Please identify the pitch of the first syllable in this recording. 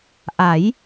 rising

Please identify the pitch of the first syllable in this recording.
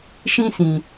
high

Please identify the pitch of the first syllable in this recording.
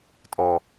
low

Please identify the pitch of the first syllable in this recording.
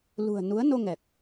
low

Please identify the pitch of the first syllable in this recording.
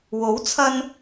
rising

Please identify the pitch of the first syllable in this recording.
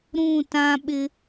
falling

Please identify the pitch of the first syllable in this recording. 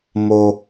low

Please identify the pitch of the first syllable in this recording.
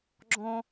high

